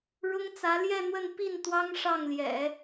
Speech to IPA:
ɻ ʊ˥ ŋ t͡s ä˧˥ l j ɛ˥˧ n̪ w ə˥˧ n p i˥˩ n t̪ w ɑ˥ ŋ ʂ ɑ˥˩ ŋ l j ɛ̰˨˩˦

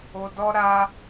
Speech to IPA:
o˧ d ɔ˦ ɾ a˦

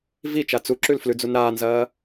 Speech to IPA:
v i t͡ʃ a t͡s u ǁ ʉ l f l ʉ d͡z u n ɾ aː n z ɐː

